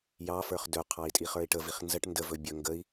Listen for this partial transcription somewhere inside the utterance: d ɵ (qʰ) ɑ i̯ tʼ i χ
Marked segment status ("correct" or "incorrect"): correct